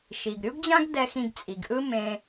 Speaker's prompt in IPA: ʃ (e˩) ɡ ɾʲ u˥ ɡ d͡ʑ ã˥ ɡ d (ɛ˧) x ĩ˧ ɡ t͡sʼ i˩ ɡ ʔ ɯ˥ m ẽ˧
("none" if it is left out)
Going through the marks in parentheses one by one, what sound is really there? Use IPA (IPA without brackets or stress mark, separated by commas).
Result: i˩, ɛ˧